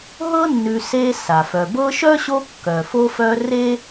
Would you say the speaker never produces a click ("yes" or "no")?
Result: yes